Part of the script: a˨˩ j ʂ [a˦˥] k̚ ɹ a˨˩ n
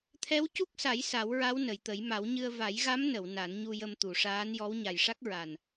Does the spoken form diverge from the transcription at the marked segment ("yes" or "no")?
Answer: no